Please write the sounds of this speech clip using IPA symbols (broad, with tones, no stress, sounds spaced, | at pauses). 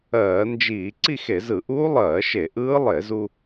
ɜː˧˩˧ n d͡ʒ iː˧˩˧ ǀ i˥˧ x e˧˩˧ z ɯ˧˩˧ ʔ uː˦˥ lˠ ɜː˧˩˧ ʃ e˧˩˧ ʔ ɯː˦˥ lˠ e˧˩˧ z u˧